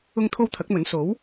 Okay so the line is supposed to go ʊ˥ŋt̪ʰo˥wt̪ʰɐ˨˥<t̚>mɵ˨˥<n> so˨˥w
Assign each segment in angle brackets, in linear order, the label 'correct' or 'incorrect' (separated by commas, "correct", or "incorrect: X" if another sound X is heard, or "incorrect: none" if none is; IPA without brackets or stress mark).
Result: incorrect: k̚, correct